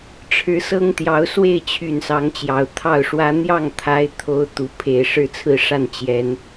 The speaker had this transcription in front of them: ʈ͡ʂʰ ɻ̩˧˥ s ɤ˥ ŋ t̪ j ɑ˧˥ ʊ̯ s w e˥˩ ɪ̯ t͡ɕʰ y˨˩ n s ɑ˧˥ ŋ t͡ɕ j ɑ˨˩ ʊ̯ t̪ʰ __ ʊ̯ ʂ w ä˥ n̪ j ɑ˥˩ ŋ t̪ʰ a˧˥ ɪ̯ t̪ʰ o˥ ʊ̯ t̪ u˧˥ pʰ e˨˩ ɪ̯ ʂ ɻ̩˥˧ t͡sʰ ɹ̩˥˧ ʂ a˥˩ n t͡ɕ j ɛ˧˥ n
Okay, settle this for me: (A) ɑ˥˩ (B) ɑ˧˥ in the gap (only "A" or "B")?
A